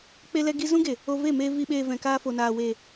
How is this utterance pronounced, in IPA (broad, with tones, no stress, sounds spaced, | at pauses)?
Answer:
k͡p e˧ l ɛ˧ ɡ i˧ z ũ˦ ɡ e˨ | o˧ v e˦˨ m e˧ v i˨ ɓ eː˨ v ɛ̃˨ k aː˧ f o˨ n aː˨ w e˨